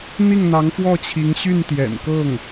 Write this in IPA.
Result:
n̪ i˥˩ ŋ n̪ ɑ˧˥ ŋ f w ɔ˥˩ t͡ɕʰ i˧˥ ŋ ɕ y˥˩ n t̪ j ɛ̰˨˩ n k ɤ˥˩ ŋ

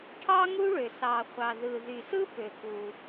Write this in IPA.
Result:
ʈʰ ɑ˥ ŋ u˥ ɭ ø˩ s ɑ˩ χʷ ɑ˩ ð ɯ˩ ð y˩ s ɯ˥ p ø˩ k u˩

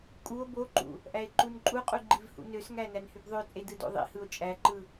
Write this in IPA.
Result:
kʼ u o̯ b o ǃ ṵ | ʔ æ e̯ ǃ u n ǃʼ u qʼ u ɡ͡ǃ i v h ṵ n ø s ŋ æ n æ n h y b ðˤ ø t͡sʼ e d ɯ d o̰ ðˤ ḭ h ɯ o̯ t͡ʃʼ æ ǃ ɯ

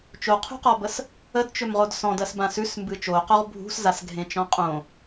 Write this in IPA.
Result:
t͡ʃ o qʰ ṳ q ɔ b ə s | ə d t͡ʃ ɵ m ʁ o d s ɔ̃ d ɜ s b ã s ʉ s m b ɨ t͡ʃ o q o ʁ bʱ ṳ s z a s ɡʱ ẽ t͡ʃ ɔ̃ qʼ õ

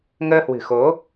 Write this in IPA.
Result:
ŋ əː˧ h w ɨ̤˨˩ x o˨˦

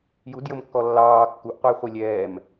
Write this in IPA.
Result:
j u d j ə m kː ɔ lː ɑː kː u ʔ qʷ ʌ j χʷ i lʲ ɛː m

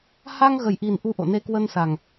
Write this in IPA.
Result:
h a˧ ŋ ɣ ə˨˩ j ʔ i˨˩ n ʔ u˧ ʔ o̰˧˨ n e˧ k w ə˧ n s a˨˩ ŋ

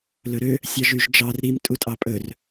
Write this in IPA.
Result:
l ɵ ɾ ø | sʲ ɑ ʒ y ʒ d͡ʒ ɑ r ɾ i m tʼ u tʼ ɑ pʼ ɵ r

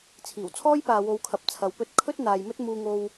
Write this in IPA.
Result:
t͡sʰ iː˨˩ w t͡sʰ ɔː˥ j p aː˨ w o˨˧ w kʰ ɐ˨ p̚ t͡sʰ ɐ˨ w p ɵ˥ t̚ kʰ ɵ˥ t̚ n̪ aː˨ j m ɵ˥ t̚ m uː˧ ŋ o˧ w

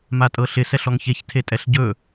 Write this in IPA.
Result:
m a tʼ ɤ ɬ ɪ s ɛ ɬ ɔ ŋ ç e ç tʰ e tʼ ɛ ɬ ɟ ɵ

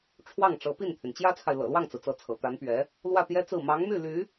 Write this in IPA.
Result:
ʈ͡ʂʰ w ɑ˥˩ ŋ ʈ͡ʂ ɤ˧˥ p i˥˩ n t̪ʰ y˩ n t͡ɕ j ä˥ t͡sʰ a˨ ɪ̯ l ɤ̰˨˩ l w ɑ˥˩ ŋ t͡s ɹ̩˩ t͡s ɤ˧˥ t͡sʰ ɤ̰˨˩ t̪ a˧˥ n p ɥ ɛ˧˥ | l w ä˥˩ t̪ j ɛ˥ t͡s ɹ̩˥˩ m ɑ˧˥ ŋ m y˥˩ l y˧˥

